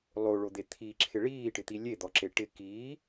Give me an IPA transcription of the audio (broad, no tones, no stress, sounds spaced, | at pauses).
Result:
lˠ o ɭ o d̪ e t̪ʰ i ǁʰ ɪ ɭ iː ʈ ɪ t̪ i lʲ e d̪ ɔ ǁ e ʈ ɪ k iː